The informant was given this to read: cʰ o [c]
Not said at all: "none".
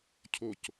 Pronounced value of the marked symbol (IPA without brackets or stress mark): c